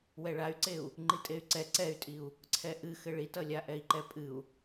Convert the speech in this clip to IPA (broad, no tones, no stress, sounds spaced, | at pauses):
w ɛ ɭ a y̯ ǀ e u̯ | ŋ͡ǃ i tʼ e y̯ ǀ ɛ ǀ ɛ y̯ tʼ i u̯ | ǀʰ ɛ ʔ ɨ x ɘ ɭ i t ʌ lʲ a ʔ ɛ i̯ ǃ ɛ pʼ ɨ u̯